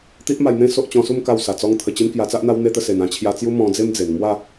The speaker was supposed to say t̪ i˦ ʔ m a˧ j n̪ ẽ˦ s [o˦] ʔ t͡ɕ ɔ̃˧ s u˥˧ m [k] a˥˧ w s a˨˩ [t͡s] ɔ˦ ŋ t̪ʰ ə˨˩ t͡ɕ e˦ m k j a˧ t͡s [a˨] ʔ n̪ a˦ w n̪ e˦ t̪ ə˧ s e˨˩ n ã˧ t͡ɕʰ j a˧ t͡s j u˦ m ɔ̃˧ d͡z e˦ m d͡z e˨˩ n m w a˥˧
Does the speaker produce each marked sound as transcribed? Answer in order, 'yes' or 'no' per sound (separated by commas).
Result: yes, yes, yes, no